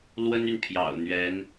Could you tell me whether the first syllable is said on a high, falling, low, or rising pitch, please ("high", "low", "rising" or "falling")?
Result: high